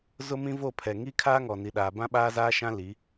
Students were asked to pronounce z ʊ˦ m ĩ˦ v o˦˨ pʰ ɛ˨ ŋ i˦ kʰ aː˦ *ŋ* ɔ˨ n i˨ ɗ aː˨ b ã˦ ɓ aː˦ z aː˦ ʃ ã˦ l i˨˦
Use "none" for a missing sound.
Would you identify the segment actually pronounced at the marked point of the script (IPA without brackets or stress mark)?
ŋ